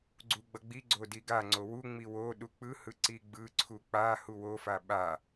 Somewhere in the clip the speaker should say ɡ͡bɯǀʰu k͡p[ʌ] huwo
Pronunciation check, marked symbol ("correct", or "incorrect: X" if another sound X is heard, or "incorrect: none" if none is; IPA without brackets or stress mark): incorrect: a